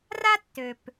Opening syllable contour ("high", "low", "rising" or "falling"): high